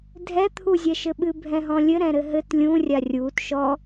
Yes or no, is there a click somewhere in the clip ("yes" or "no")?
no